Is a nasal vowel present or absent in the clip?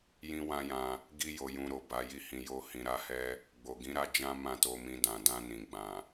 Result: present